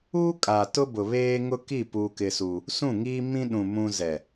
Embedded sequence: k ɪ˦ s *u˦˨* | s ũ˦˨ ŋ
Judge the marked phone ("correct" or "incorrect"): incorrect